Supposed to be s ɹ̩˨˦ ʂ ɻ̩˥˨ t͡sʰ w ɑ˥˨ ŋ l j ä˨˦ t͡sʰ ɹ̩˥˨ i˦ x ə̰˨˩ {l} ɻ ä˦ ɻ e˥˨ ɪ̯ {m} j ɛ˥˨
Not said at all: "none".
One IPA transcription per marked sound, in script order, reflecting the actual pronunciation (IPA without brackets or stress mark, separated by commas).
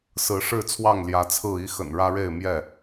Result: n, m